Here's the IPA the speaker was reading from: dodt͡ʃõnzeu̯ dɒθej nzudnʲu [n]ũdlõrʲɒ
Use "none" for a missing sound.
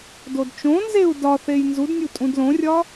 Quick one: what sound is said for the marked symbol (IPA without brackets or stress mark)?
tʼ